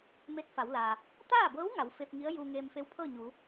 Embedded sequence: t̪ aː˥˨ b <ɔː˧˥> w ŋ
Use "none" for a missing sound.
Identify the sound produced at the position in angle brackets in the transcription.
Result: ɤː˧˥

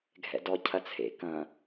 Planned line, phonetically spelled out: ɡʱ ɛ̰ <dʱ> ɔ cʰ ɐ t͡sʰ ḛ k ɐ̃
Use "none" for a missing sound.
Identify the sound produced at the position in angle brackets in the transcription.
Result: d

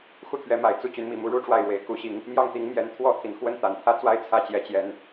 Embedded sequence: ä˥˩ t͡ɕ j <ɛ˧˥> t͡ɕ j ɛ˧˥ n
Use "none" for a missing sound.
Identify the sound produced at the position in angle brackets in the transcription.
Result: ɛ˧˥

